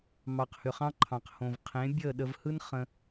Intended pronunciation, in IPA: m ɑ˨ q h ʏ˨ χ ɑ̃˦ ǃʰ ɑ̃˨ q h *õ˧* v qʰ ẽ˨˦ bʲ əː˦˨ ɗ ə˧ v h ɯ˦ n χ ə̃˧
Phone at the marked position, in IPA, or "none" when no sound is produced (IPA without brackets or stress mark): õ˨